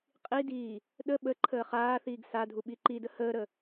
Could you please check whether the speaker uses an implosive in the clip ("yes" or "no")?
yes